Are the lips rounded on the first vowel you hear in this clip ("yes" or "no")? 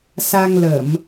no